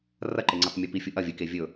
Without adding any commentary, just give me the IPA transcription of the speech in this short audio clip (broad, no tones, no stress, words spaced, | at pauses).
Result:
rɐǃeŋ͡ǀetˤmʲʉ pifʲu ʔɐ vʲɨke vʲɵ